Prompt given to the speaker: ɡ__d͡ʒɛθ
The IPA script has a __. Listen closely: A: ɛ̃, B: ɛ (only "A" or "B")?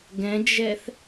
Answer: A